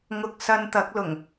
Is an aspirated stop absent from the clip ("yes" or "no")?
yes